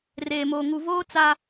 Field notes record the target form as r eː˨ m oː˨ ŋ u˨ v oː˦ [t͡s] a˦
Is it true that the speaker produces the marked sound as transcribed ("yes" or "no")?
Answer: yes